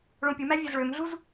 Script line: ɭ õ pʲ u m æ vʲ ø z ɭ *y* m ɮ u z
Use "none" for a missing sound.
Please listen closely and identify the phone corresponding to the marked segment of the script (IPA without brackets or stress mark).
ø